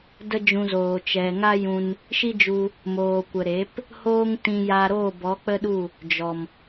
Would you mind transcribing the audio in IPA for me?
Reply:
d ə˦ d͡ʒ ũ˧ z oː˨ t͡ʃ ɛ˨ ŋ a˦ j ũ˧ n | ʃ i˦ d͡ʒ u˧ | m oː˨ kʷ ə˨ ɾ e˨˦ p | h oː˦ ŋ t ĩ˧ j a˧ ɾ oː˦˨ b ɔ˨˦ k͡p ə˦ ɗ u˦˨ | d͡ʒ ɔ˨ m

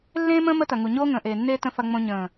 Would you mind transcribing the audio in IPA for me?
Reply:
lː ẽː˦ m ə̃ː˦ m ə˦ t ɐ˨ ŋ u˨ ɲ oː˦ ŋ ə̃ː˨ ʔ eː˨ nː eː˦ t ə̃˦ f ɐ˦ ŋ͡m õ˦ ɲ ə̃ː˨

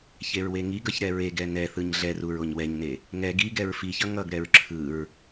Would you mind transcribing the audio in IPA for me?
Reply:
ç e ɹ w e ŋ i ɡ ʌ ç ɾ ɛ ɹ e ɡ ɛ n ɛ θ ɯ ɲ ɮ ɛ r u ɹ o ɲ w ɛ ɲ n e | ŋ ɛ ɡ i ɡ ɛ ɹ f i ç ʌ ŋ ʌ ɡ ɾ ɛ ɹ ǁʰ ɯ ɹ

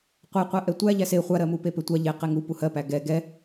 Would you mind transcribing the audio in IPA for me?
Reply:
qʷ ɛ qʷ ɛ ʔ ɛ tʷ æ ʎ æ s e χʷ a ɾ ɜ m u p e p e tʷ a ʎ e q e ŋ u p u h ɜ p æ ɡ ɛ ɡ ɛ

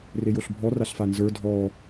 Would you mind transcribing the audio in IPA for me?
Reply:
r e j o ɬ bʱ ɔ r a ɬ f a n z ə˞ dʱ ɔ

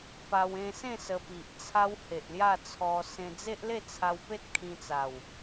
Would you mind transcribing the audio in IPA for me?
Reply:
p a˧ w ẽ˧ s ẽ˥˧ s ə˧ p i˨ ʔ t͡sʰ a˦ w h e˨ ʔ l j a˥˧ t͡sʰ ɔ˧ s ẽ˧ d͡z e˦ ʔ l e˥˧ t͡sʰ a˧ w p e˦ t̚ kʰ ĩ˧ t͡s a˨˩ w

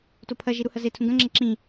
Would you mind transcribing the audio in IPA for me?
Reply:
t o pʰ ɐ ʒ i ɾ u h ɐ z e tʰ ũ ɡ ɐ̃ ŋ͡ǁ ɐ ǁ ĩ

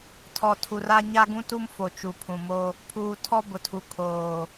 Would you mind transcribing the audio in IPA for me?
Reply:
tʰ ɔ˨ tʰ u˨ r a˦ ɲ a˦ ɡ ũ˦ t u˦ m f o˨ t͡ʃ u˨ pʰ ũ˨ m o˦ | pʰ uː˨ tʰ ɔ˦ b ʊ˨ tʰ u˨ kʰ oː˨

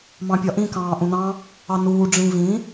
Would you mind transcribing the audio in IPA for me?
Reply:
m ɑ̃ pʲ ɒ ʔ ĩ k ɑ̃ː ʔ ũ n ɑ̃ | ɑ n uː ɖ͡ʐ ĩ v ĩ

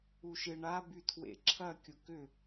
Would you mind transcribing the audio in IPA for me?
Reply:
u ʃ ɪ ɳ a b y tʰ w ḛ ǁʰ ɐ kʲ ʊ k ʏ

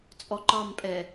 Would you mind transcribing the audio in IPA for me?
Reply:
t͡sʼ ɔ ǃ ɑ m pʼ ɛ

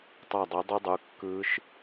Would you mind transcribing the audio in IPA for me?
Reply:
tˤ ɑ˧˩ dˤ ø˨˦ dˤ ɯ˦˥ dˤ u˩˧˩ kː ɯː˦˥ ʃ

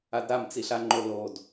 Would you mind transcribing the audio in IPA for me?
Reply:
a d ɾ a m t͡s i ɬ a ŋ͡ǃ o l o d

